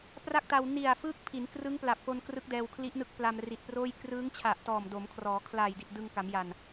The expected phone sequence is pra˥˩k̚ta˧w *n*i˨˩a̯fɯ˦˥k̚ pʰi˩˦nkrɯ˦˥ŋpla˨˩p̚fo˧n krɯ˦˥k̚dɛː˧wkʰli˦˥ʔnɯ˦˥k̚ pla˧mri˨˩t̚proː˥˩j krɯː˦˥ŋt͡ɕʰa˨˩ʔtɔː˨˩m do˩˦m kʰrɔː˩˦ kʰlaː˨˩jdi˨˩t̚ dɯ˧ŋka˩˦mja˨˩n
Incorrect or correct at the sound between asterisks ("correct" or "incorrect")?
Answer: correct